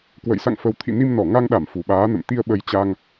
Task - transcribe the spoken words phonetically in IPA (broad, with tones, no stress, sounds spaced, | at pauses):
k w ə̰˧˨ j s a̰˧˨ ŋ f ə˨˩ w t̪ʰ ḭ˧˨ n i˧ m n ɔ˧˩ ŋ a˧ ŋ ɗ a˧˩ m f u˨˩ ɓ aː˨˦ n ə̰˧˨ m t̪ i˧ ə̯ ɓ ə˨˦ j t͡ɕ a˧ ŋ